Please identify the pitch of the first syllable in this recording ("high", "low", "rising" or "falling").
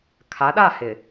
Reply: rising